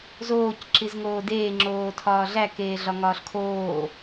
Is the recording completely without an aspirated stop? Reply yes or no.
no